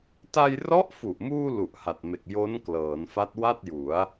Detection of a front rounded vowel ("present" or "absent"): absent